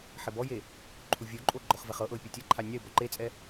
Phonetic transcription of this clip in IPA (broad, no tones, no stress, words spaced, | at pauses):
ħebɔje | ǃʰuvʲoǃʼo ɡ͡ǃɔχvɛχɤʔɤɪ̯ pʲotʲɤǃʰa nʲaɪ̯bɔ ǃet͡sʼɛ